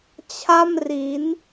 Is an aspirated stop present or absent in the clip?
present